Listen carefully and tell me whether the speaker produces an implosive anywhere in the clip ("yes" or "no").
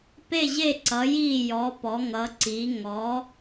no